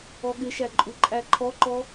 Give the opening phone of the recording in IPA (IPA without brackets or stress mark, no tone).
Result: ɔ